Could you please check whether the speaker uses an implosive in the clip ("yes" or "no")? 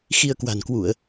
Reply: no